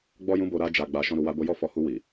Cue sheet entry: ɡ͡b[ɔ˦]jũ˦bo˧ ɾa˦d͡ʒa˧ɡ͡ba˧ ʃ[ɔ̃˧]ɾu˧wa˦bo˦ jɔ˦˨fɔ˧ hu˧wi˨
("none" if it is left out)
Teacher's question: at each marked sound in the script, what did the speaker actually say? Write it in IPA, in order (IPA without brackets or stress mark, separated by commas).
ɔ˦, ɔ̃˦